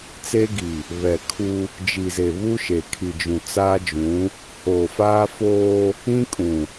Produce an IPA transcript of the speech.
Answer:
t͡s e˦ ɡ i˨ | β ɛ˨ kʰ u˦ | d͡ʒ i˨ z e˨ β u˦ ʃ e˨ kʰ i˨ d͡ʒ ũ˨ t͡s aː˦ d͡ʒ ũ˨˦ | h oː˨ f aː˦ f oː˦ | ĩ˦ kʼ ũ˨

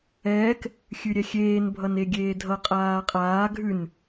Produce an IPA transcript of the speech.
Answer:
ɛː k | xʲ ʉ ɾʲ ɛ xʲ eː n bʱ ʌ n e ɡʲ eː dʱ ʌ qʼ aː qʼ aː ɡʱ ʉ n

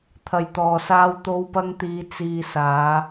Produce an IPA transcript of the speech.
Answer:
t̪ʰ ɐ˨ j t̪ ɔː˨ s aː˧ w t̪ o˧ w p ɐ˧ ŋ t̪ iː˨˧ t͡s iː˨ s aː˨˧

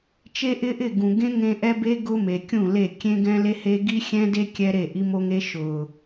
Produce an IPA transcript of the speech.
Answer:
t͡ʃ e˦ ʔ ɪ˦ ʔ ɪ˦˨ ɡ ũ˨ ɡ ẽ˦ ŋ ẽ˦ ʔ ɛ˦ b e˦ ɡ ʊ˦ m e˨ kʲ ũ˦˨ l e˦˨ kʲ ẽ˦ ɡ ɛ̃˦ l e˦ h e˦ ɡ i˦ xʲ ɛ̃˦ d e˦ kʲ ɛ˦ ɾ e˦˨ ʔ i˦ m o˦ ŋ e˦ ʃ ʊ˨

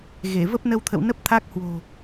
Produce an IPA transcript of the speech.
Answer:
ɣ e˧˩ v ə˦˥ p̚ n ə˧ w t̪ʰ ə̰˧˨ w n ə˦˥ p̚ t̪ʰ a˦˥ k̚ h w o̤˨˩

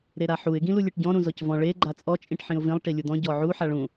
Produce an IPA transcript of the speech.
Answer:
ɾ e ɾ a ħ u ɪ̯ ɡ ĩ l u lʲ e ʈ ɟ ɔ̃ ɾ ũ z ɔ c v ɔ̃ ɭ e ɡ͡ǃ a t͡sʼ ɔ t͡ʃʼ ĩ ʈ ħ ĩ ʊ̯ v ĩ lˠ ʈ i lʲ u d̪ ɔ̃ ɟ ɔ ʕ u ħ a ɭ ũ

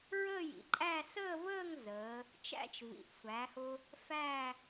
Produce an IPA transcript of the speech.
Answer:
ɹ əː˥˧ j ḭ˩˧ ǃʼ æ˥˧ s əː˥˧ v əː˥˧ ŋ z əː˩˧ | t͡ʃ æ̰˥˧ t͡ʃ v ḭ˩˧˩ ʔ sʷ æ˩˧ h ʊ˧ | f æː˥˧

